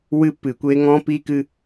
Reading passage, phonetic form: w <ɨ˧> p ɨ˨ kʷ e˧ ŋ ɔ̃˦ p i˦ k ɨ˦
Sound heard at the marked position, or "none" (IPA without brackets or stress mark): ɨ˧